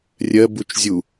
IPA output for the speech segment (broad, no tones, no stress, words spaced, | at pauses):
rʲɜbut͡ʃ zʲu